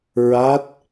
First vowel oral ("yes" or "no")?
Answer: yes